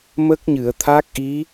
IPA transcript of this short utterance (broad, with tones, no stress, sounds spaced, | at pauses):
m ə˦˥ k̚ ɲ ɨ˨˩˨ ə̯ t̪ʰ a˦˥ k̚ ʔ i˧˥